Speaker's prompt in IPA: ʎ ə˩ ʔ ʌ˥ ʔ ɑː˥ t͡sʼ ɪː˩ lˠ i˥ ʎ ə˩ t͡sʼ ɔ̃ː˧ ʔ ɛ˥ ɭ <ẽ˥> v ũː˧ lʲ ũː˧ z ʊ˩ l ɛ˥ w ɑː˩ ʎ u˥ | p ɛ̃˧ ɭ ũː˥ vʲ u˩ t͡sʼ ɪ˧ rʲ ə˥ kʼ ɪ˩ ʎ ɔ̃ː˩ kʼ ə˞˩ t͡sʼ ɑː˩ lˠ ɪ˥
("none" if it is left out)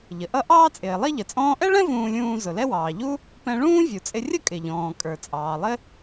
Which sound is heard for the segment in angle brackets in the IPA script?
ɛ̃˥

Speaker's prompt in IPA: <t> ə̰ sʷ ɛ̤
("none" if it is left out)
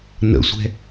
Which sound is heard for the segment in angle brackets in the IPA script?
n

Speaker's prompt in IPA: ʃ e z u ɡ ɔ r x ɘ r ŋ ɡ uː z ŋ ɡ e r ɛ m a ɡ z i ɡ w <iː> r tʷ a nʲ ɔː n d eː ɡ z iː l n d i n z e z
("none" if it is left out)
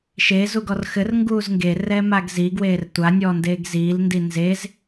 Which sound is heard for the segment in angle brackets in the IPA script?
eː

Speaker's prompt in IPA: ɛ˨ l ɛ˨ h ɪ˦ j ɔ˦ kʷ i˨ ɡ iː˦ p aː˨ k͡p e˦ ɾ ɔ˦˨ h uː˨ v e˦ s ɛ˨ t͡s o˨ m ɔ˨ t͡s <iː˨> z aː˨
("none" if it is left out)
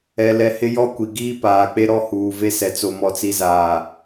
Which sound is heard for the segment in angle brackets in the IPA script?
i˨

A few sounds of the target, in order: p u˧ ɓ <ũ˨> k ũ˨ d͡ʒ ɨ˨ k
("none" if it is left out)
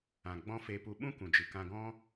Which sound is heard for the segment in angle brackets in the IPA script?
ũ˦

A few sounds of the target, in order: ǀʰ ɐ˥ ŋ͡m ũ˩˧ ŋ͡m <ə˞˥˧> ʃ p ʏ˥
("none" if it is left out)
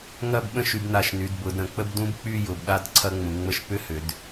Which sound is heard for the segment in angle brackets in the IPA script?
ə˥˧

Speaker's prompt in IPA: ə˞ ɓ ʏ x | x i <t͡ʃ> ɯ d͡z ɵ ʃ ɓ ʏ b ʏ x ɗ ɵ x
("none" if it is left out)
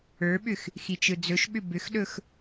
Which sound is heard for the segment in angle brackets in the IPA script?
t͡ʃ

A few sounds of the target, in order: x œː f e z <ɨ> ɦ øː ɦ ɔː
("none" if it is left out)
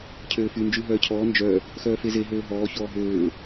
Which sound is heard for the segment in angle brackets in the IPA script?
e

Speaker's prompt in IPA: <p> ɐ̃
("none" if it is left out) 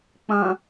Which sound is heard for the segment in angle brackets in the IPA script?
k͡p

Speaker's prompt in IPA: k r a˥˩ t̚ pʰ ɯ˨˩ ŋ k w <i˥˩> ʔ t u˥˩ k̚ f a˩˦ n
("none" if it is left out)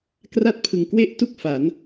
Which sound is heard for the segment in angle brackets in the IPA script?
e˥˩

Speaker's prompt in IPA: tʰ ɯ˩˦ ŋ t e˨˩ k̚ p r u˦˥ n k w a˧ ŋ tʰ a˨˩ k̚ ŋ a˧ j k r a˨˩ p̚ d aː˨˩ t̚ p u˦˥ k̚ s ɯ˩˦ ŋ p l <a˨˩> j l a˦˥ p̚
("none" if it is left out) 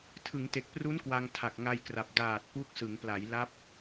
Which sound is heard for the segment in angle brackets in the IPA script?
a˩˦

